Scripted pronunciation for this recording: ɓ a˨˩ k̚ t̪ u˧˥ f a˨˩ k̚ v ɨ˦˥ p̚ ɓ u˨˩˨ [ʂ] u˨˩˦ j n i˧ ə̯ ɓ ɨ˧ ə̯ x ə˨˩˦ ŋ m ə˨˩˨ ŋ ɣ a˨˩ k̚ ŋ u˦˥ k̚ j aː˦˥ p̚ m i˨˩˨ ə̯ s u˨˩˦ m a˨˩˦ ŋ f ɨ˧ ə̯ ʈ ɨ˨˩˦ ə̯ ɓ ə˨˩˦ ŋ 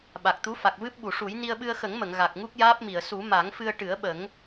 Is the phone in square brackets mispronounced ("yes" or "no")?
no